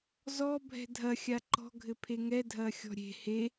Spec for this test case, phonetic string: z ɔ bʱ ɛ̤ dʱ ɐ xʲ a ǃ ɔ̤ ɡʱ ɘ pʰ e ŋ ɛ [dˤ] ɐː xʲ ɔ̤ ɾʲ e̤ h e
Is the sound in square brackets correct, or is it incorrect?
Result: incorrect